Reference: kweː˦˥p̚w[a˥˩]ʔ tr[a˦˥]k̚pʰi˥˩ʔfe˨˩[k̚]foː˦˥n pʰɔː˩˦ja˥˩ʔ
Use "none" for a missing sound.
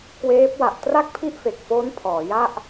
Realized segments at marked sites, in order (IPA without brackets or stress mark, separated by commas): a˨˩, a˥˩, k̚